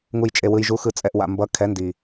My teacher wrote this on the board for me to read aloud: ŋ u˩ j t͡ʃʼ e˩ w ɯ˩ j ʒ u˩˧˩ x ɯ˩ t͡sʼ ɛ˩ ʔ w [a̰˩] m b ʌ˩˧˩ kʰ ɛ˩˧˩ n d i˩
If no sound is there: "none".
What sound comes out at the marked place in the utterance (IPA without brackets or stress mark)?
a̰˩